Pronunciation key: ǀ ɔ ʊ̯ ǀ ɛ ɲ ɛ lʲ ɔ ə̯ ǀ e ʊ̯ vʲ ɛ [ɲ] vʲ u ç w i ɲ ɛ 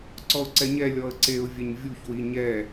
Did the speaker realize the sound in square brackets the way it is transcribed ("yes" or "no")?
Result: yes